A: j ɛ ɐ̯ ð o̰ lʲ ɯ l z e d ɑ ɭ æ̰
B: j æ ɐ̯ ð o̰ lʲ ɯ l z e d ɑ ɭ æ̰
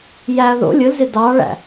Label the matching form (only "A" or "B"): B